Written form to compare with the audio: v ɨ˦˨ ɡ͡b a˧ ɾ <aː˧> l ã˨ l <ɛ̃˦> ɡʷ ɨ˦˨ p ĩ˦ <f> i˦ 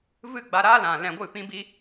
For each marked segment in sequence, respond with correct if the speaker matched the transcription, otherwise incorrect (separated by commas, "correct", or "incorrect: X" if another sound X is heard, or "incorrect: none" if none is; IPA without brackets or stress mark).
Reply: incorrect: aː˦, incorrect: ɛ̃˧, incorrect: b